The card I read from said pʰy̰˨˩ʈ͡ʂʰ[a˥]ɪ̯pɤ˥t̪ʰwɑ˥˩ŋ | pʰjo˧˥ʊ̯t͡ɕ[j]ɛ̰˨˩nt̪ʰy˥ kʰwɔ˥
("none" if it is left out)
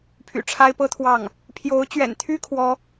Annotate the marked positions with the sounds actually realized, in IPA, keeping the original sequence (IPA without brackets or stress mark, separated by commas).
a˥, ɥ